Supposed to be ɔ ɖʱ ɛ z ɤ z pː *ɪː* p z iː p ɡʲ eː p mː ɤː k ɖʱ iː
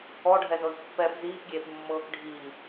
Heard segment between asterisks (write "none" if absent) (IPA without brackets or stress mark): ɛː